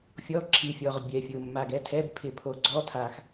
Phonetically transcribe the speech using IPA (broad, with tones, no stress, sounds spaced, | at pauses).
fʲ ɔ˧˥˧ ǁʰ i˨˩ fʲ ɔ˨˩ ʁ bʲ ɛ˨˩ fʲ ʊ˨˩ mː a˨˩ ɡ ɛ˧˥˧ tʰ ɛ˧˥˧ b pʰ ɪ˨˩ pʰ o˨˩ ɡ͡ǀ ɔ˧˥˧ tʰ a˨˩ x